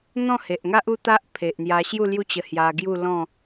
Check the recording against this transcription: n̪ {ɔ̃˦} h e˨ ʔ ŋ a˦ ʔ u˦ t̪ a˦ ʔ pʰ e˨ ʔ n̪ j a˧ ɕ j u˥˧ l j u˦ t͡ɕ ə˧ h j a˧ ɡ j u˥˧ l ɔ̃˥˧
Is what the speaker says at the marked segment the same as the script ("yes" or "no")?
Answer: no